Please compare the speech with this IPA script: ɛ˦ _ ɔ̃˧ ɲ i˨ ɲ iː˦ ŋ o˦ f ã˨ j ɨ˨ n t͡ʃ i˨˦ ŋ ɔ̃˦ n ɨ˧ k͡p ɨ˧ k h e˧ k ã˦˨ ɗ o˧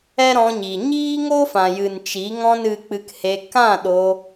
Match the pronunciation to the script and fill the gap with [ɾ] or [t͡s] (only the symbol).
ɾ